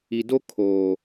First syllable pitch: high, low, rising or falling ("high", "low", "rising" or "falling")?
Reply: low